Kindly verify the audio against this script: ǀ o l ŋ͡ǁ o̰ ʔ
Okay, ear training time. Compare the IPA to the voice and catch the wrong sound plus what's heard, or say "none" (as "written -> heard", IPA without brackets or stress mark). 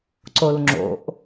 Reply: none